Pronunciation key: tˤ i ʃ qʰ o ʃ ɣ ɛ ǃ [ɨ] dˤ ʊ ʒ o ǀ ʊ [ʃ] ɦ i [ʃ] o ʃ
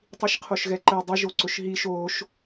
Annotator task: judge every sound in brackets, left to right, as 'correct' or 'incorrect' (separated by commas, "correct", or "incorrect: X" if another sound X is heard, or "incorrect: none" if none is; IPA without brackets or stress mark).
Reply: incorrect: ɛ, correct, correct